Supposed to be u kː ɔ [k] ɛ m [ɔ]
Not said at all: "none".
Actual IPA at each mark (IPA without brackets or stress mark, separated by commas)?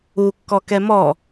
k, ɔ